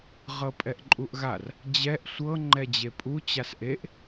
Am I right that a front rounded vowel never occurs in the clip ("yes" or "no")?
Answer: yes